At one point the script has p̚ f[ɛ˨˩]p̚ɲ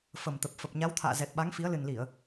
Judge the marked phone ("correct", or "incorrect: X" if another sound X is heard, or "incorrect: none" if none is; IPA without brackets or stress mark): incorrect: ə˨˩